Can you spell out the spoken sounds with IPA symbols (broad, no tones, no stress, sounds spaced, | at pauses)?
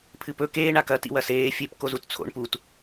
pʰ ɨ p ɵ k eː ɳ a k ɐ t ḭ w ɐ s eː fʲ e p k o z u t t͡sʰ o̰ ɳ p u t